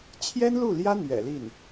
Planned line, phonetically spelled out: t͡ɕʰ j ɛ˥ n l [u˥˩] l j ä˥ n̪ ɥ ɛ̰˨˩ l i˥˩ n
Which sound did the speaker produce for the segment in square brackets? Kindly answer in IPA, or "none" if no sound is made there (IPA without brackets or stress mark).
u˥˩